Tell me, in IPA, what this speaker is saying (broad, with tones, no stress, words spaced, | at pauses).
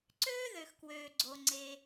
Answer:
ǀøː˥ðø˩xkwøː˩ɡ͡ǀo˩ ŋ͡ǀe˩